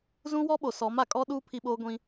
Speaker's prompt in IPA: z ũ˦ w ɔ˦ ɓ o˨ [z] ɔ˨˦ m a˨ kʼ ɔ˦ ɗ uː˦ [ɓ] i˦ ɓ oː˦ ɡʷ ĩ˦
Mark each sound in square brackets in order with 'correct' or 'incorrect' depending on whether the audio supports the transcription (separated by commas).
incorrect, incorrect